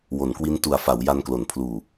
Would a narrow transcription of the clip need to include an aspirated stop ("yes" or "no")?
yes